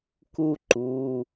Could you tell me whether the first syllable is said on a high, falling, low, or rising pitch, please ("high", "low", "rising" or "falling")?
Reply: high